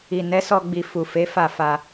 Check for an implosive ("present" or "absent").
absent